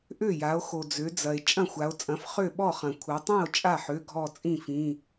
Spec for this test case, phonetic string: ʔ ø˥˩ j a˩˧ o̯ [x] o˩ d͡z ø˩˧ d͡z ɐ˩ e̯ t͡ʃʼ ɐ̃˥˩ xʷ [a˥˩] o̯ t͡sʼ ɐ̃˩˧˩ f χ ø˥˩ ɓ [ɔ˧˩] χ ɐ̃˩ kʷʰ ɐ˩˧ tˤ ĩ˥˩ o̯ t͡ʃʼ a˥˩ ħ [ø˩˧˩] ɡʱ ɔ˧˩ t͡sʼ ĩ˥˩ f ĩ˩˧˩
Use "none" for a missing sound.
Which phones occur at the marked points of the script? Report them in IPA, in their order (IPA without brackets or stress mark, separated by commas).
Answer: x, a˩˧, ɔ˥˩, ø˩˧˩